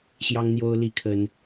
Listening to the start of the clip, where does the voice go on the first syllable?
high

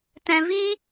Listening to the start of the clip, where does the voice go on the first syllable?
low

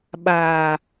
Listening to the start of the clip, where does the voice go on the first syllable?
low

